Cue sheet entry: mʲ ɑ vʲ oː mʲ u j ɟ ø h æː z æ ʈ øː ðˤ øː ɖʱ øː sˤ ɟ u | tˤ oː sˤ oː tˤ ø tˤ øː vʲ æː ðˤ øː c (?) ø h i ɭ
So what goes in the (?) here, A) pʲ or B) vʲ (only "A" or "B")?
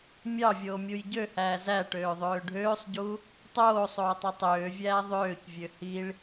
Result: B